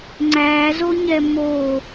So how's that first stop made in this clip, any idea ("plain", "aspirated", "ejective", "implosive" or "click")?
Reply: click